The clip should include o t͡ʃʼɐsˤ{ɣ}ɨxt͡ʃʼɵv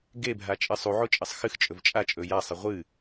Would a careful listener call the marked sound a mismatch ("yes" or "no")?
yes